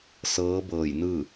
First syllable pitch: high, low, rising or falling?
rising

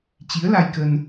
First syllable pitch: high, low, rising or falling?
rising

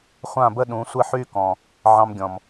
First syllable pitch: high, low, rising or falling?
falling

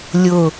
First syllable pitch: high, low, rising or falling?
falling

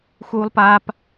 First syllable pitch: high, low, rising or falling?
high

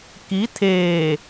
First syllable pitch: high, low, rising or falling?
rising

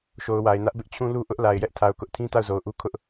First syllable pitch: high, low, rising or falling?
low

